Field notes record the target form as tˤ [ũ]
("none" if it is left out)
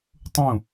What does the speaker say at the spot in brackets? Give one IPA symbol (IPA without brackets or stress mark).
ũ